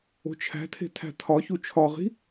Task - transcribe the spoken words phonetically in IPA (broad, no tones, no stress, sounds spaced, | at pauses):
o̤ t͡ʃʰ æ̤ tʰ e̤ tʰ æ̤ tʰ ɒ ç u t͡ʃʰ ɒ ʁ i̤